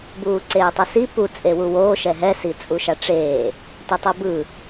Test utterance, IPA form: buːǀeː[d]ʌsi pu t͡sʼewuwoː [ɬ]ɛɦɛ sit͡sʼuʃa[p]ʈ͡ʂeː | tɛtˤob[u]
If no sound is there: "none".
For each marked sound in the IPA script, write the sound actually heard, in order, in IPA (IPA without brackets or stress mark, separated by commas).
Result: tˤ, ʃ, none, ɯ